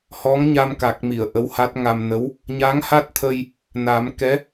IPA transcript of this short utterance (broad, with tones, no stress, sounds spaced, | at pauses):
h ɔ˧˥ ŋ ɲ a˧ m k a˨˩ k̚ m i˨˩˨ ə̯ ʔ ə˧˥ w h a˦˥ t̚ ŋ a˧ m n ə˧˥ w | ɲ a˧˥ ŋ h a˦˥ t̚ t̪ʰ ə˧ j | n a˨˩˦ m k ɛ˧˥